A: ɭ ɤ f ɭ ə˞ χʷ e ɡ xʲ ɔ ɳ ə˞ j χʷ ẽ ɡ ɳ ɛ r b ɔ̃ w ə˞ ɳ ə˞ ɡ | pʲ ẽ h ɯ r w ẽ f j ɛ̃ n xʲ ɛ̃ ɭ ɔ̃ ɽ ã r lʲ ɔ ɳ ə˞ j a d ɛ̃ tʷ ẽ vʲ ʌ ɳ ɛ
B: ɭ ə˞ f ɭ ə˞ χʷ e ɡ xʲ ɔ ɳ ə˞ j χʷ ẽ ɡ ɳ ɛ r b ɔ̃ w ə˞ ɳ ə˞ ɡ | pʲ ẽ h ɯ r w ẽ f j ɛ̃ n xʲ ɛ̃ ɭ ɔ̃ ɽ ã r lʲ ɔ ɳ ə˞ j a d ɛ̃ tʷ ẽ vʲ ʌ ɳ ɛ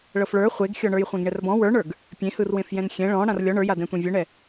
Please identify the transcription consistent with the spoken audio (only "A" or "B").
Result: A